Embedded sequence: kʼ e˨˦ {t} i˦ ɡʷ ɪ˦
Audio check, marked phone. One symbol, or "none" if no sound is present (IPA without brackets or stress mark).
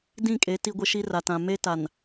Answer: t